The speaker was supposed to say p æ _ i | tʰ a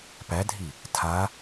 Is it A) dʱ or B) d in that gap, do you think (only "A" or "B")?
A